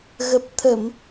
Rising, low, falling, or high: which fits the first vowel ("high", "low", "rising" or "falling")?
low